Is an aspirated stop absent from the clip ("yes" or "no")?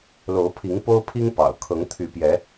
no